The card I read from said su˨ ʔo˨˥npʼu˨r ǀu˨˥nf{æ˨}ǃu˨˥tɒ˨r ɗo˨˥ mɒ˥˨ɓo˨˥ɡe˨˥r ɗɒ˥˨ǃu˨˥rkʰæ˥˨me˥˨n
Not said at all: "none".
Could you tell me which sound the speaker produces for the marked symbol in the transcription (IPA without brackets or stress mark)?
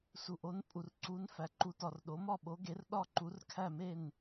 æ˨